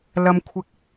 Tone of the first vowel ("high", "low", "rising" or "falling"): low